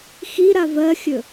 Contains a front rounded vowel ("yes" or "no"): no